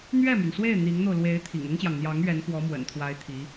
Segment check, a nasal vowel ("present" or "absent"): absent